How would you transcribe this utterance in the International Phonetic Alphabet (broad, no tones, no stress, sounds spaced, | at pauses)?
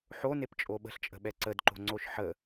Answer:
ħ o n e p t͡ʃʼ o ɓ ə̤ ɬ t͡ʃʼ ə̤ ɓ ɛ ǀ ə d ǃ o̤ ŋ͡ǀ o ʃ ħ ə